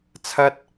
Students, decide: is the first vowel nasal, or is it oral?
oral